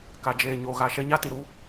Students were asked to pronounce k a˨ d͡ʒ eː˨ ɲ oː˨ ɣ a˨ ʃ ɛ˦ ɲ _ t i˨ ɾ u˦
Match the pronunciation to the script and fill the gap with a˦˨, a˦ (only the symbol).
a˦